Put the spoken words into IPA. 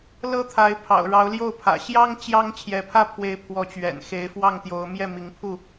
l ɤ˦ t̪ʰ a˨˦ ɪ̯ pʰ ɑ̰˨˩ ʊ̯ ɻ ɑ˨˦ ʊ̯ l j o˥˨ ʊ̯ pʰ ä̰˨˩ ɕ j ɑ˦ ŋ t͡ɕ j ɑ˦ ŋ t͡ɕʰ j ɛ˨˦ pʰ ä˦ pʰ w e˨˦ ɪ̯ pʰ w ɔ˨˦ t͡ɕ ɥ ɛ̰˨˩ n x e˨˦ ɪ̯ f w ɑ˥˨ ŋ t̪ j o˨˦ ʊ̯ m j ɛ˥˨ m i˨˦ ŋ pʰ u˥˨

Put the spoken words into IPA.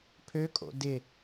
pʰ ø kʼ o̰ d ɪ

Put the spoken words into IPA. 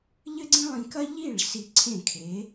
ʎ ɘ˥ ɡ͡ǀ ĩ˥ lˠ ĩ˧ k ɐ˥ ʎ i˥˩ ɭ s i˧ ǀʰ ẽ˥˩ kʰ e˩˥

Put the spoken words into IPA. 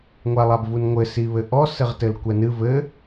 ŋʷ a lˠ a b v u n ŋʷ ɘ s i β ɘ ʔ ɔ s ɘ ʁ t ɘ l kʷ ɛ n ɨ v ɘ

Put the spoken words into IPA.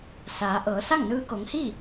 s aː˩˧ ʔ ɤː˩˧ s a˥˨ ŋ n ɯː˧ k o˩˧ ŋ h iː˥˨

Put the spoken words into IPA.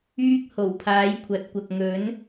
yː˥ k̚ h o˨˩ w pʰ aː˨˥ j kʷʰ ɐ˨ t̚ kʷ ɐ˨ k̚ ŋ ɵ˨˥ n

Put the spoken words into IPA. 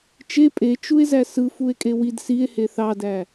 t͡ʃ e pʼ e t͡ʃ u e̯ z æ s ɯ f u e̯ kʼ e w i d s i e̯ h e θ ɑ d æ

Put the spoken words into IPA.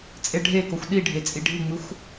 t͡sʼ e ɖʱ e k o xʷ ɗ i ɖʱ e t͡sʼ i ɖʱ i ŋ͡m ɯ xʷ

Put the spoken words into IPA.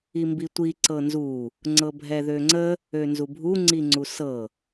i m b i tʷ i ǀ ɤ n z u | ŋ͡ǀ ɤ bʱ ɛ ð ø ŋ͡ǀ ə | ø n z u bʱ u ŋ͡ǀ i ŋ͡ǀ u s ɤ

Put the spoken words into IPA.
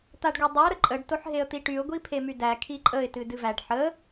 t̪ a ɖ ɡʷ e dˤ o ɾ ə ǃʼ ə ɖ t o ħ ɦ e ə̯ t̪ i ʈ y ʊ̯ ɡʷ i pʰ e m y d æ kʰ i ǃʼ ə ɪ̯ t ɨ d ɨ v æ ɖ ħ ə

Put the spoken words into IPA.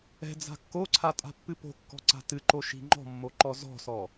ɛ̤ d͡z a̤ kː o ǀʰ a tʼ a̤ pː ɨ p o̤ kː ɔ̤ ǀ a̤ t ɨ ǃ o ʃ i̤ ŋ͡ǃ ɔ̤ mː o ǃ ɔ z ɔ̤ s ɔ

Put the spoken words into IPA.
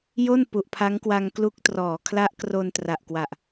j o˥˩ n p u˨˩ ʔ pʰ a˦˥ ŋ k w a˧ ŋ k l u˦˥ k̚ t r ɔː˩˦ kʰ l a˦˥ ʔ k r o˧ n t r a˨˩ ʔ k w a˨˩ ʔ

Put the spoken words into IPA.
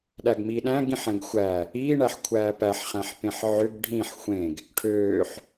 ɗ æ ɡ m i ɗ æ̃ ɡ ĩ ħ ɛ̃ ɡ xʷ æ | i ɳ æ ħ kʷʰ æː p æ ħ χ æ̃ ħ p ẽ ħ ʕ ʏ ɡ ɖʱ ĩ ħ xʷ ẽ ɡ | ʈʰ øː ħ

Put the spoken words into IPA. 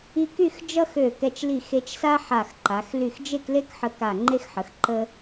i˥ k y˥˧ x d͡ʒ ʌ˥ x ø˧˩ k ɛ˧ t͡ʃ l i˧˩ x e˧ t͡ʃ s a˥ ħ a˧˩ x ǃ a˩˧ x l y˧˩ x d͡ʒ e˥˧ k l e˥ k ħ ə˧ k a˧˩ ŋ͡ǃ e˥ x ħ ə˩˧ x ǃ ə˥

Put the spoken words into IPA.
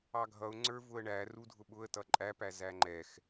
ɑ ɡʱ ʌ ʊ̯ ŋ͡ǀ ə˞ v ʊ ə̯ ɳ æ r u dʱ ʊ ɓ ʊ ə̯ t ʌ ǃʼ æ p æ z æ ŋ͡ǃ ɛ x

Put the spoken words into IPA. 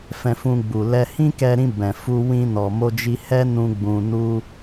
f ɛ̃˧ f ũ˧ ɡ͡b u˨ l ɛ˧ h ĩ˦ k ɛ˧ ɾ ĩ˧ b ɛ̃˨ f u˧ w ĩ˧ n ɔ˨ m o˧ d͡ʒ i˧ h ɛ˦ n ũ˧ ɡ͡b ũ˧ n u˦

